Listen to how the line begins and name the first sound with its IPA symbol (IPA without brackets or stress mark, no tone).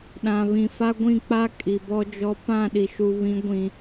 ɗ